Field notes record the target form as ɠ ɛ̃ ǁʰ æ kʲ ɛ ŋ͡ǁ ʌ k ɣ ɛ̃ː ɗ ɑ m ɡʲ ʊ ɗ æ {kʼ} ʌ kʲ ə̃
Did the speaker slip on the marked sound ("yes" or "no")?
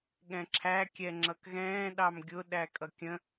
no